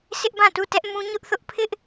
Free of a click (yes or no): yes